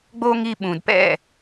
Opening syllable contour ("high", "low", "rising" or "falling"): high